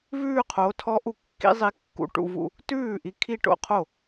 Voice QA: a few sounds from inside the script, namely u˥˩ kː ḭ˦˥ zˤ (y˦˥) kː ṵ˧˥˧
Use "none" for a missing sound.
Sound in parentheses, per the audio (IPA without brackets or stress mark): i˦˥